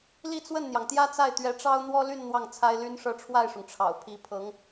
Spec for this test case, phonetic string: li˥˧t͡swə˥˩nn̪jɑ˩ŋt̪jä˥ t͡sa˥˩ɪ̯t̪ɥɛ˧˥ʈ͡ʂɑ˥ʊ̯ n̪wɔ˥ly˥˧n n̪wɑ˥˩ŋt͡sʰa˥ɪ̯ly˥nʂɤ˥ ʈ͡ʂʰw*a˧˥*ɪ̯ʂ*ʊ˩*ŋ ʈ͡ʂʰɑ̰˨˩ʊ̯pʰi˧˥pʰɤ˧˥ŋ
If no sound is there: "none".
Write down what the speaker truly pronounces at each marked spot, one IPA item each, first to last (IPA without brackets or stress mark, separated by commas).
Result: a˥˩, ʊ˩